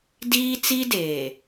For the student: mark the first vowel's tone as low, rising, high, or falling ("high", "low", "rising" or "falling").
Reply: high